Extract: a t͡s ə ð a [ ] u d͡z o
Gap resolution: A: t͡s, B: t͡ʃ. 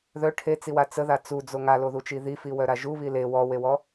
A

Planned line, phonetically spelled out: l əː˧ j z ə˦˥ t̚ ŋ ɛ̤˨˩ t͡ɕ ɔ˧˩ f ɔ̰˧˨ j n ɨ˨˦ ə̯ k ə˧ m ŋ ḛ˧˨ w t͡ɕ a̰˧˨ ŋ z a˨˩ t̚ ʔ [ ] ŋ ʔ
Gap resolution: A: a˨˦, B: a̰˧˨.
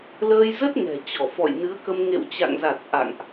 B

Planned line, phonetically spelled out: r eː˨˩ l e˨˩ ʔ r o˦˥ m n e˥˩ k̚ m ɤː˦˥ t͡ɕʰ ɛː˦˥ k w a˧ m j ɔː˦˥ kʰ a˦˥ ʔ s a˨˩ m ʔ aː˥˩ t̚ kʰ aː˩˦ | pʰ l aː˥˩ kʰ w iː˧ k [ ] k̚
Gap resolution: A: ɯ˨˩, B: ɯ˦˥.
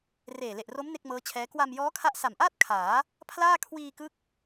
B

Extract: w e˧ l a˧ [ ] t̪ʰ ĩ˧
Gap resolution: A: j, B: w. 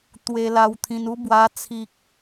B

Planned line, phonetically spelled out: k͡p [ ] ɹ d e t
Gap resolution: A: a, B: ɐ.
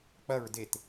B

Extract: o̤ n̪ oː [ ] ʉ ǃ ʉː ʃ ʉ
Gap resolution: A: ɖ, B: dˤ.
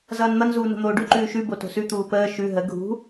A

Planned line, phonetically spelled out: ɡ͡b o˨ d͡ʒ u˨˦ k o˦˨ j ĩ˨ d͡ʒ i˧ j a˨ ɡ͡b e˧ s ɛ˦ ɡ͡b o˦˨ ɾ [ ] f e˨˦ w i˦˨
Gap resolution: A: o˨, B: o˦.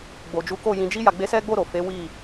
A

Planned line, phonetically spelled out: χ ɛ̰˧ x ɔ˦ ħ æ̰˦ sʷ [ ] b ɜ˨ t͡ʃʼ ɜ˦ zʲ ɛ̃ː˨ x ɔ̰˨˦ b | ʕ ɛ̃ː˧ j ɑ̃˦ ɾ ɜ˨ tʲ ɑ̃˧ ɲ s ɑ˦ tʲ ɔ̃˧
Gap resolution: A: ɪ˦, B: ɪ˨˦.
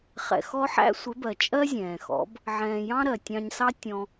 B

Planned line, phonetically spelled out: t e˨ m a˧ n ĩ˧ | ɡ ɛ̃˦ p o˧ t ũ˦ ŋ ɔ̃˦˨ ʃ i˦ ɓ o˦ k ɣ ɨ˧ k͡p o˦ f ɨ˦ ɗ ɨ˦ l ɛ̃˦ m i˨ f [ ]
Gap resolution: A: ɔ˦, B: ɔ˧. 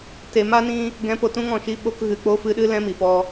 B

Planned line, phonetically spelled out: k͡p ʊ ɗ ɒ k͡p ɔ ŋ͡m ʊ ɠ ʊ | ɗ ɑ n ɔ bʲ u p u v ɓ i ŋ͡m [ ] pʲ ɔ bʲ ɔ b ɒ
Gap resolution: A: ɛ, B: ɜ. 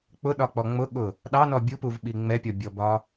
A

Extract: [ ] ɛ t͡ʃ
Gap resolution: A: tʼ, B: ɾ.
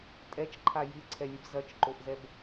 A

